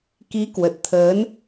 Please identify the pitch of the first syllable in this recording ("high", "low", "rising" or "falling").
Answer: rising